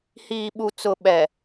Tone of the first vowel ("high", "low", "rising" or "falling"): low